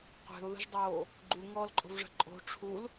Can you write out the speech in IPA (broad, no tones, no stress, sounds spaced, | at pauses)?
qʷ e̤ ʊ̯ ð ə̤ ʒ dˤ oː | ɡ͡ǃ u ŋ ɔː l ǃʼ o̤ v ʐ ə̤ ǃʼ o̤ ʈ͡ʂʰ u l